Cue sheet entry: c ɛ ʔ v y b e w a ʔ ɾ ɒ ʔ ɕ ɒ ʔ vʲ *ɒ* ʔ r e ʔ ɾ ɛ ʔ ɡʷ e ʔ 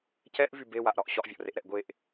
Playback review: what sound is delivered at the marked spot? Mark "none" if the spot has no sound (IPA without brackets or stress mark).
ɒ